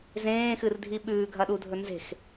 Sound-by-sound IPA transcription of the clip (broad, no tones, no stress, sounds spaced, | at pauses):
z ẽː x ɨ r dʱ i ɓ ʉː ɡʱ ɐ ɗ u dʱ ɵ n z e̤ x